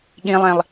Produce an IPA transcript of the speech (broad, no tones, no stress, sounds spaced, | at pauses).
ɠ ĩ lˠ ẽ lˠ